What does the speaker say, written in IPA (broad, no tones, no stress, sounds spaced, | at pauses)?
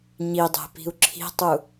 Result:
ɲ i dˤ e̤ p i̤ u̯ ǁʰ i̤ tˤ u